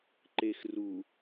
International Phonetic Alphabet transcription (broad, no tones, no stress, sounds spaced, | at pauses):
ǃ e x r u